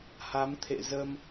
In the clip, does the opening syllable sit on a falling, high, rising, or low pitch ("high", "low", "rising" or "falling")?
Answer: rising